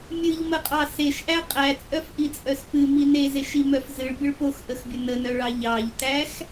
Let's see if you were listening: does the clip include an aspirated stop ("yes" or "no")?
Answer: no